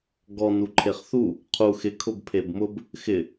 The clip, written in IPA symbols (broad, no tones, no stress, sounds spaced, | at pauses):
ɡ ɔ n u ǃʰ e χ θ u | qʰ u x ɪ kʰ ʊ b pʰ e b m ʊ b | x ɪ